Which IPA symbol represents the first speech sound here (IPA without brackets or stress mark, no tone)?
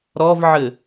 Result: ɾ